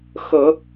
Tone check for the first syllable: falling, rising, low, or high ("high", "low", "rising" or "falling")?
low